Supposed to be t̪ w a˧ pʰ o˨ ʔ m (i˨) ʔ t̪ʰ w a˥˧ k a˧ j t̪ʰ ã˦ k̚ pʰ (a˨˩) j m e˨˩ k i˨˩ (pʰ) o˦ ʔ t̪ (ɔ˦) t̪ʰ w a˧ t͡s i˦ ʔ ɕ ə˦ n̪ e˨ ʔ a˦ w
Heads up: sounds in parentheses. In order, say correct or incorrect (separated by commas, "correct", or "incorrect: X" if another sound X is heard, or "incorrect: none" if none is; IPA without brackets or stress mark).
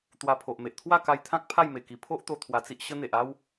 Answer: incorrect: e˨, incorrect: a˥˧, correct, incorrect: o˦